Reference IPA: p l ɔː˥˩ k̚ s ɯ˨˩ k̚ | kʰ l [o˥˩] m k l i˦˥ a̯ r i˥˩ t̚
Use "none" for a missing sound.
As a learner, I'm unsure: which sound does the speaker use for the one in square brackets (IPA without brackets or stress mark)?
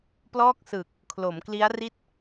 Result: o˩˦